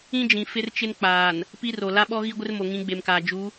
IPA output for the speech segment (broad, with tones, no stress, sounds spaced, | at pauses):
ĩ˦ d͡ʒ ĩ˨ f ɪ˦ r t͡ʃ ɪ˦ n k͡p aː˨ n | p i˦ r o˨ l a˦ ɓ ɔ˦ ɣ i˦ ɡʷ ɪ˦ r m o˨ ŋ ĩ˨˦ ɡ͡b e˨ m k aː˨ d͡ʒ u˨˦